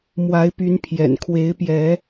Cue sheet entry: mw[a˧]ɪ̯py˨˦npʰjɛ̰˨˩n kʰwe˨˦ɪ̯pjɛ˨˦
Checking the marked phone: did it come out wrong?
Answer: yes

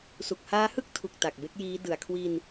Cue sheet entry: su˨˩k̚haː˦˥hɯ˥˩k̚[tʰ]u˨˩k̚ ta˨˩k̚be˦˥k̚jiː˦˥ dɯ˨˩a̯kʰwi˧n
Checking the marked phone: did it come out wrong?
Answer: no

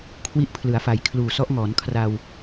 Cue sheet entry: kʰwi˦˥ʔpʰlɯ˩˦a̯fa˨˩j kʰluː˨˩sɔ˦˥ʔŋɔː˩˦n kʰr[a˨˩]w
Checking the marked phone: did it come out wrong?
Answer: yes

